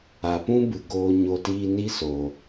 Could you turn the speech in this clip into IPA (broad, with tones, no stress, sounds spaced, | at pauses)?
a˨ p ũ˦ b ɨ˨ ɡ oː˨ ɲ o˨ t iː˧ n i˦ s oː˨